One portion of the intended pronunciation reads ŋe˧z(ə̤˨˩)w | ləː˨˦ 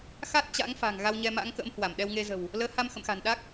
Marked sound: correct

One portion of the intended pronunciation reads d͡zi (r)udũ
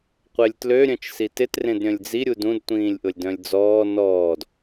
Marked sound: incorrect: ɾʲ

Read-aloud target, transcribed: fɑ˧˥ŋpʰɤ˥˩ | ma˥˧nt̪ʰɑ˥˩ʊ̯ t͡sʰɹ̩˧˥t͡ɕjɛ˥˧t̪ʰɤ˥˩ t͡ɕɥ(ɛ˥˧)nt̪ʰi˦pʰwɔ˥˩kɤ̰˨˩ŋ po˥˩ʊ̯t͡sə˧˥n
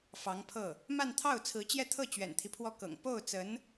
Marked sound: incorrect: ɛ̰˨˩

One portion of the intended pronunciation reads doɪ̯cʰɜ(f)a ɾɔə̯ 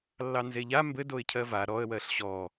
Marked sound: incorrect: v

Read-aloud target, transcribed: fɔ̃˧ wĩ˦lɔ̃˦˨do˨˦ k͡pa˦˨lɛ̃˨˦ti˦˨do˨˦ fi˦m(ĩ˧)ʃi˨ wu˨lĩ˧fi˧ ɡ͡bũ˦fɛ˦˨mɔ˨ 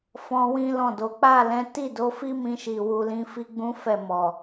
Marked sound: correct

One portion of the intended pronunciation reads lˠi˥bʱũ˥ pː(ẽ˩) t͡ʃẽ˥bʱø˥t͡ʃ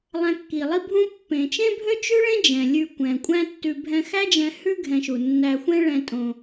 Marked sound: correct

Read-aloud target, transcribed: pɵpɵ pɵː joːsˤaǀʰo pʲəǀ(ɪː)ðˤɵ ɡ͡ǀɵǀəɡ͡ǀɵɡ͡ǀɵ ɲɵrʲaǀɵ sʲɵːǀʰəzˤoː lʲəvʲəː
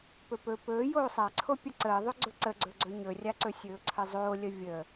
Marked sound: incorrect: əː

